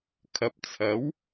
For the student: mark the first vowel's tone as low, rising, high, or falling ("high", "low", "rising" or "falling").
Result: low